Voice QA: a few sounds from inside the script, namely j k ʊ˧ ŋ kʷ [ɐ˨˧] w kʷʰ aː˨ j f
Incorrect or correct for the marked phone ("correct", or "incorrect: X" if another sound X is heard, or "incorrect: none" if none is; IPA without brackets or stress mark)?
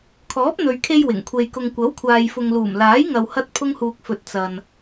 incorrect: ɐ˨˥